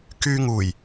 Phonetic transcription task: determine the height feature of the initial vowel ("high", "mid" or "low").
high